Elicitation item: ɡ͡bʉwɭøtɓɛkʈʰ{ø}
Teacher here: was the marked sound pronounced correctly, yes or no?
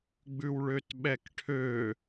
yes